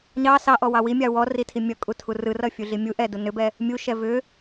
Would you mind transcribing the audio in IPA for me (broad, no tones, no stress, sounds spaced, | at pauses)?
ɲ ɑ s ɑ ʔ ɔ w ɑ w i mʲ ɑ w ɔ r i tʰ i mʲ ʌ kʼ u tʰ u r ɯ r ʌ fʲ u ɮ i mʲ u ʔ ɛ d u n ʏ b ɛ | mʲ u ʃ ɛ v ʏ